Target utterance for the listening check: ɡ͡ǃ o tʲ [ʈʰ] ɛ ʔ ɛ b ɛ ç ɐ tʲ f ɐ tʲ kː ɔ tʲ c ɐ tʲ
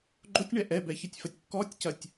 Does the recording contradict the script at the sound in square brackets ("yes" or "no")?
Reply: yes